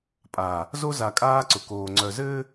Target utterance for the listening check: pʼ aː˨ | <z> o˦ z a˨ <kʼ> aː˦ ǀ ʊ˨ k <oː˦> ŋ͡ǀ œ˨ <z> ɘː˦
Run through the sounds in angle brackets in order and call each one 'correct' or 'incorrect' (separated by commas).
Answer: correct, correct, incorrect, correct